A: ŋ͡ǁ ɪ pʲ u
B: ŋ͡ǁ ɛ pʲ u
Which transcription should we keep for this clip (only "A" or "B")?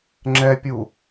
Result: B